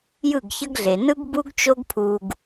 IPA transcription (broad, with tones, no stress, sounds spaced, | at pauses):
j ɯ˦˨ ɡ ç ʌ˦ ɡ ɮ e˨ n ɯ˦ ɡ b u˦ ɡ t͡ʃ o˦ ɡ pʰ u˧ ɡ